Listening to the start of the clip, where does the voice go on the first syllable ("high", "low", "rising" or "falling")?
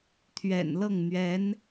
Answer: low